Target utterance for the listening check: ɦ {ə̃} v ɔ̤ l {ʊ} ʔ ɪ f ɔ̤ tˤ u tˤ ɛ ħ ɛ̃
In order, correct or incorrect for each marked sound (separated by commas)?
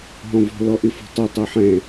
incorrect, incorrect